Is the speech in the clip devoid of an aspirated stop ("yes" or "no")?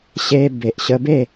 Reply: yes